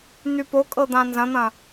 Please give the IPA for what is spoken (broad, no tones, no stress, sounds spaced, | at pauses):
n̪ y p o kʼ ɤ d̪ ã n z ɐ̃ n̪ ɐ̃